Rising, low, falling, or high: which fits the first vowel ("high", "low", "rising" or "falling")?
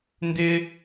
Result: high